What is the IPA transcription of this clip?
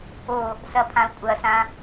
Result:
o | s ɐ pʰ ã u̯ kʷʼ ɐ s ã

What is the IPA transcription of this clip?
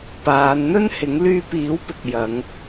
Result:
p aː˨˧ n n̪ ɵ˥ n h ɪ˨˥ ŋ l yː˧ p iː˨˥ w p ɪ˨ k̚ j ɐ˨˧ ŋ

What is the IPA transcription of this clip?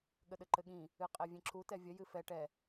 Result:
ɠ ə ɗ ɘ ǃ ɘ ɠ ĩ | ɨ qʼ ɛ vʲ ẽ ǁ u t ɛ vʲ ə j ɨ f ɛ ʈ ɛ

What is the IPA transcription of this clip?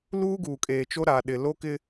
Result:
l uː˦ ɡ uː˨ kʼ eː˨ t͡ʃ o˦ ɾ a˨ ɗ ɪ˨ l o˦ k ɪ˦

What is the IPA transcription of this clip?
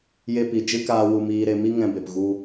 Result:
j e˧ p i˨ d͡ʒ ɨ˦ k aː˧ w u˧ m iː˧ ɾ e˧ m i˦ ŋ ɛ̃˧ b e˨ p ɣ u˧

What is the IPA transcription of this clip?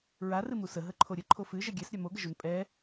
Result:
ɹ a r ɨ m u s ə ɦ ə ǃʰ o ɾʲ ə ǃʰ o f ɨ ʒ ɛ ɡʲ ɛ s ɾʲ a m o ɡ ə ʒ o n pʼ ɛ

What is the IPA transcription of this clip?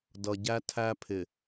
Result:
d ʌ˨ ɟ æ˦ tʰ æ˦ pʰ ɪ˨

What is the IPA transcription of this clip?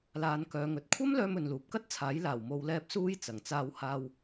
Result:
l aː˨˧ n k œː˨˧ ŋ ɵ˨ t̚ kʷʰ ɐ˥ m l œː˧ m ɵ˨ n l uː˨ p̚ k ɐ˥ t̚ t͡sʰ aː˨˥ j l aː˨˩ w m o˨˧ w l ɛː˧ p̚ s uː˥ j t͡s ɐ˨˩ ŋ t͡s aː˧ w h aː˧ w

